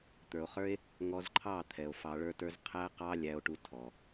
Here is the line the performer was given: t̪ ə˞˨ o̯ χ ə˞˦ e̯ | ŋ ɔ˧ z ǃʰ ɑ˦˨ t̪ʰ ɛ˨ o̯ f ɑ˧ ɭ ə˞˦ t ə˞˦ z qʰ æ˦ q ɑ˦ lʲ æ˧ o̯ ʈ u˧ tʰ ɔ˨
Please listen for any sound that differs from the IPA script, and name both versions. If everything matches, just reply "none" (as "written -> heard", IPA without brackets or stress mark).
none